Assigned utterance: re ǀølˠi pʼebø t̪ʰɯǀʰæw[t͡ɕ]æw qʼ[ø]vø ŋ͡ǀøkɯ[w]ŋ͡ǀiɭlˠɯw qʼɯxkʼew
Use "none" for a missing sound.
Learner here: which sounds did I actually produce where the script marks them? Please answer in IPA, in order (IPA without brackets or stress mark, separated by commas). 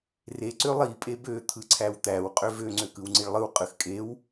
t̪, ø, w